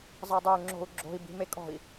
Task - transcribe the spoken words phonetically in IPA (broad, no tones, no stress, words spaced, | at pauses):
zˤɤdˤœu̯ŋ͡ǁo̤u̯ɡ͡ǁo̤i̯ bi̤mekʼɔ̤i̯